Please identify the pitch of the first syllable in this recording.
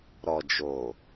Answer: low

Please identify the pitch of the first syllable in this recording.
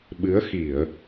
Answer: rising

